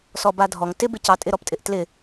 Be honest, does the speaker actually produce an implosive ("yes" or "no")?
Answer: no